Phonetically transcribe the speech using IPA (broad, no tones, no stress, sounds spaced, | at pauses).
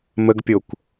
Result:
m ə ɡ pʲ o kʷ